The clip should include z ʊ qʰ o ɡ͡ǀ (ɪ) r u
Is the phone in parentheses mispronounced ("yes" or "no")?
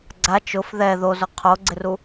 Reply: no